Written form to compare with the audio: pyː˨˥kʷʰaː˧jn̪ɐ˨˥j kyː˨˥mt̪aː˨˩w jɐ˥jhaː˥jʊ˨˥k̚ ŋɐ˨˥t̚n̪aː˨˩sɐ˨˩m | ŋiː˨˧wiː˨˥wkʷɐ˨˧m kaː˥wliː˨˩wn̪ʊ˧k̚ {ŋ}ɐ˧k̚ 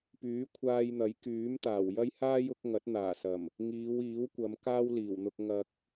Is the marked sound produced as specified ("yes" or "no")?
yes